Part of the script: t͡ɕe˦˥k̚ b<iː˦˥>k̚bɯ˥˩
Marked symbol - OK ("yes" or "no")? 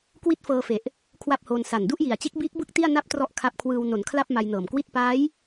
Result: yes